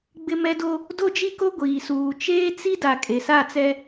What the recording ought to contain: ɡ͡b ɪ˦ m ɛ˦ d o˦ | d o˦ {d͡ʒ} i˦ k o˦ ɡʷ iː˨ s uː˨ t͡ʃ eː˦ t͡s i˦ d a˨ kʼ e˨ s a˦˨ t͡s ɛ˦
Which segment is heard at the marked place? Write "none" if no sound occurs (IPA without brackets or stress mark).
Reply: d͡ʒ